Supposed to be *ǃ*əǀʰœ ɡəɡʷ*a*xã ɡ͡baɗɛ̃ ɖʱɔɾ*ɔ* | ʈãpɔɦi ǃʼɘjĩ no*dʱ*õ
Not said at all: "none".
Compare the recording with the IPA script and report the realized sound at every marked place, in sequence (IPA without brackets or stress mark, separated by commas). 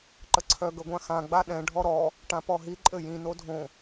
ǃ, ã, ɔ, dʱ